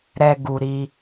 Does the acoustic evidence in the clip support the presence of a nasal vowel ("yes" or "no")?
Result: no